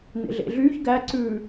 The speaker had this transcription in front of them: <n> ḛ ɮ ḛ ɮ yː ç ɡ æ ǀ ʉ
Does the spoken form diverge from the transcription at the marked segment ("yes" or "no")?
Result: no